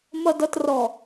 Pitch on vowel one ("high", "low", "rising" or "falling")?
low